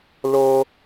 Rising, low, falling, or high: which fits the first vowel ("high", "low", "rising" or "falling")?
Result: high